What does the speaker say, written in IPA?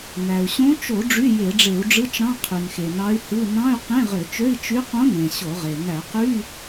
n æ˩ u̯ ɕ õ˧˥ t͡ʃ o˧˩˧ ɖ͡ʐ y˧˥˧ j e˧˩˧ ɖ͡ʐ e˧˩˧ u̯ ɖ͡ʐ ɯ˧˥˧ t͡ʃ ɾ ɑ̃˧˥˧ qʰ y˩ n x e˩ n ɑ˧˥ y̯ h ɯ˧˥˧ n ɑ̃˧˥˧ y̯ q ẽ˧˥˧ ʁ ø˧˩˧ t͡ʃ ø˧˥˧ i̯ t͡ʃ y˧˥ q õ˧˥ n ẽ˩ ɕ o˧˩˧ ʁ e˩ n æ˧˩˧ q y˧˥˧

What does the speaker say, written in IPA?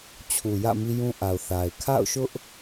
t͡ɕʰ u˨ j ä̰˦˨ m i˦ j ũ˦ ʔ a˨ ʊ̯ θ a˨ ɪ̯ kʰ a̰˦˨ ʊ̯ ʃ ʊ˦ ʔ

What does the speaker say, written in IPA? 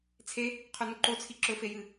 t͡sʰ e | qʰ ʉ n u ǃ o t͡sʰ i ǁ ɵ f e j ɨ

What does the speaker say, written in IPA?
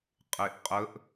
qʼ e ʔ qʼ ə ʔ

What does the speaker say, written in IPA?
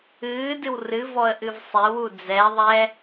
ɨː d ɨ w r ɨ v ɔ ə̯ ʔ ɨ v sˤ e w u d͡z ɛ ðˤ ɛ

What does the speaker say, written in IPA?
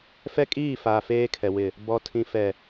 f ɛ˦ kʼ iː˦˨ f a˨ f eː˦ kʰ ɛ˨ w ɪ˨ | b ɔ˨ tʰ ĩ˨ f ɛ˨

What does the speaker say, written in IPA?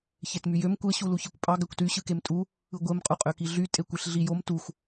ç e t m y j ø m kʷ e ɕ u l u ç i kʷ pʼ ɑ ɡ æ kʷ t y ɕ ɯ k e m tʼ u | ɯ ɡʷ e m qʼ u qʼ ø k i ɮ y tʼ e kʷ e ɬ ɮ i j o m t u x

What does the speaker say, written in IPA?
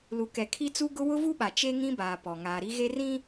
l u˨ k ɛ˨ kʰ i˦ t͡s u˦ ɡ ʊ˦ w ʊ˦ v u˦ ɓ a˨ t͡ʃ e˦ ŋ ĩ˦ b aː˨ p ɔ˨ ŋ aː˨ ɾ i˦ ɣ e˦ r ĩ˦

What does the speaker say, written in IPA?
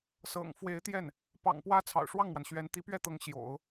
s ɤ̰˨˩ ŋ f w e˧˥ ɪ̯ t̪ j ɛ˥˩ n | p ɑ̰˨˩ ŋ p w ä˥ t͡sʰ ɑ̰˨˩ ʊ̯ ʂ w ɑ˥˩ ŋ m w a˩ n ɕ ɥ ɛ˧˥ n t̪ i˧˥ p ɥ ɛ˥˩ t̪ ɤ˧˥ ŋ ɕ j o̰˨˩˦ ʊ̯

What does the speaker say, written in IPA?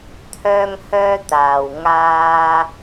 t̪ʰ œː˥ ŋ h œː˥ t̪ aː˨ w ŋ aː˥

